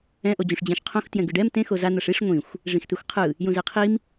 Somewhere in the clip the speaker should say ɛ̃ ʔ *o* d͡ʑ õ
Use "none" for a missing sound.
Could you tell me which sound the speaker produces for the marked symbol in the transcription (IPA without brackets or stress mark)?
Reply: o